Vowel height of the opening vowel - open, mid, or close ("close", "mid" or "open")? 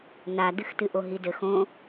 open